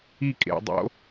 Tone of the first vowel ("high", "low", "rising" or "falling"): falling